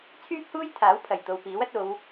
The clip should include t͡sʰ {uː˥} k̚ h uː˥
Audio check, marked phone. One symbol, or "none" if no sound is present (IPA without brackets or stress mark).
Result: yː˥